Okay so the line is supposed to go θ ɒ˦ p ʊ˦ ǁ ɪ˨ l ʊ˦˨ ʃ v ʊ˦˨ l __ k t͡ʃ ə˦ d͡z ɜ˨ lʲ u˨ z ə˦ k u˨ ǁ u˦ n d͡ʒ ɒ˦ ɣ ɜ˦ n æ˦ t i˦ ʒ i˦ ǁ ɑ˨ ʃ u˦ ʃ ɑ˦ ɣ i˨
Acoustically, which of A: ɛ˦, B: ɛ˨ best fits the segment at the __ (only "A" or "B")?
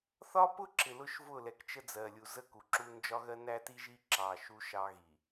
B